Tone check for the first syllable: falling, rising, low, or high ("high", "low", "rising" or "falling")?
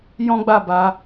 high